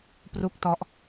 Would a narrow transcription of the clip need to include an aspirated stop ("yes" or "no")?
no